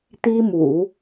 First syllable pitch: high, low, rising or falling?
high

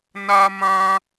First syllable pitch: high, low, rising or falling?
high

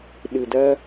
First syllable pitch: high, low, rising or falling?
low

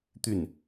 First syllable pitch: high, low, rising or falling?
falling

